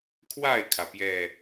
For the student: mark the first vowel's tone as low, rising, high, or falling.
falling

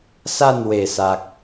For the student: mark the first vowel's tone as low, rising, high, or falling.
falling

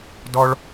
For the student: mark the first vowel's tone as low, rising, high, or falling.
high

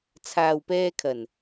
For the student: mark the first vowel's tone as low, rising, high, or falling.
low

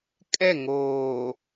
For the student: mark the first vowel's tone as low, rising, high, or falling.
falling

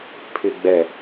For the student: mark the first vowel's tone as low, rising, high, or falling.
low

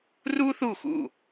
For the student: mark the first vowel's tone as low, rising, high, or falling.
high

